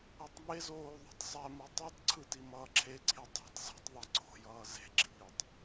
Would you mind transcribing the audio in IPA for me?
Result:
ɛtˤmezoː ðˤṳtˤsˤɛmɯ tˤetˤǀʰɯ timʌːǁʰeǀʰi dˤe̤tˤ zṳtˤðˤɛ ǀʰo̤jʌː ze̤ɡ͡ǁiːtˤ

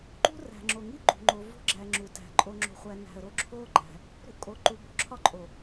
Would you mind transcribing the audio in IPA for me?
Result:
ǃṳ˦ræ̤˨ŋ͡ǁo˨ŋi˦ ɡ͡ǃṳ˨ŋ͡ǃo˨ vo̤˦ɡ͡ǁæ˨ ŋ͡ǁu˨tæ̤˨ ǃʼo˨ŋ͡ǁo̤˨χʷæ˨ næ̤˨ə̯ɾo˦ ǁʰo˦ɡ͡ǃæ̤˨ | ɾṳ˦ʔkʼo˨ ǃu˨bo̤˦ǁʰɒ˦ ǃʼo˨

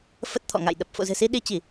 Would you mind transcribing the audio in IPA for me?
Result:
fə˦˥t̚t̪ʰɔ̰˧˨ŋa̰˧˨j ɗə˨˩p̚ fo̰˧˨zɨ̤˨˩si˧ ɗi˧t͡ɕi˧˩˨

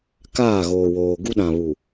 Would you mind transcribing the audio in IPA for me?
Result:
kaː˦˨ɣoː˨woː˨ ɡu˦ɗã˨βu˨

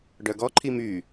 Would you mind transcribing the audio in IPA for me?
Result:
ɖœɡɔ ǃʰimy

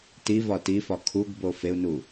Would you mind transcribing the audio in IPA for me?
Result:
tivɒ tifɒ kʰuɡbo feu̯nu

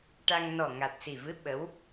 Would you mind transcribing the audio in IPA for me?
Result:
ʈa˧ŋ nɔ˨˩ ŋa˨˩t̚si˨˩ vɨ˧˥ ɓə˧˥w

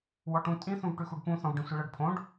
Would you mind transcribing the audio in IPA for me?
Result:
wɔʈũ tʼĩ θũvʈʉxuɖpũ θɔ̃vɖĩsʷiɭɤɖ pʰõɖ

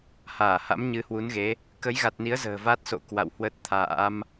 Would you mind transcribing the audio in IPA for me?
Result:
haː˧˩ha̰˧˥m ɲɨ˨˦hwu˨˦nɣe˨˦ | kə˨˦jɣa˨˩t̚ ni˨˦ə̯ zə̤ː˨˩va˦˥t̚so̰˧˨ kwa̰˧˨whwə˦˥t̚t̪ʰa̰ː˧˥m

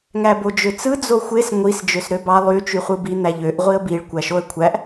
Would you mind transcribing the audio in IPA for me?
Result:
ŋæbod͡ʒøt͡sɯ d͡zoxʷes ŋʷis d͡ʒøsɾøbɑ lˠy t͡ʃyχʷɯbi n̪æʎøʔ ʁʷiə̯biɭ kʷæʃoə̯kʷʰæʔ

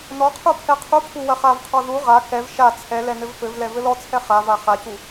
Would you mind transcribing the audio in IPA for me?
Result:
nɔqʰu pʰɛqʰupʰu wɐχavqʰɔ ðu ʁa kɛv ʃa t͡sʰɛ lɛnɘvfɘvlɛ vɘlɔt͡sʰɛ χava χacu

